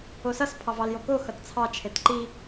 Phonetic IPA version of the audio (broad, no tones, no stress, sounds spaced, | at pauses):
o s ʌ s pʰ ɑ v ɑ l j o k o x ʌ t t͡sʰ ɑ t͡ʃʰ e t ǃ i